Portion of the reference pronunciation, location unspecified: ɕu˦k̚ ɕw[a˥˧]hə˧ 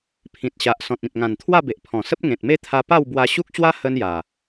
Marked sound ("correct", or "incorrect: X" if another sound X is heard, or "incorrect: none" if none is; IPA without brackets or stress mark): incorrect: a˦